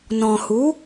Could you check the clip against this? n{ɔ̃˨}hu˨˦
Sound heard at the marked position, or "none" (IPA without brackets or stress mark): ɔ̃˨